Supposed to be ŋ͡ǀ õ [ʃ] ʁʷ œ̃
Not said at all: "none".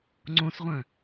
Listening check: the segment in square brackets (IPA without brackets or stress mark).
s